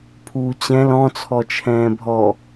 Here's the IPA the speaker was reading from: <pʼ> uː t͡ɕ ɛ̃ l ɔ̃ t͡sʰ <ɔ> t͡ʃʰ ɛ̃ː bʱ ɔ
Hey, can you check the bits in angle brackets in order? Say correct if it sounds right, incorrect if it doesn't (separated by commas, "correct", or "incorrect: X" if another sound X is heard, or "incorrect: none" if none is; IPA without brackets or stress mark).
incorrect: pʰ, correct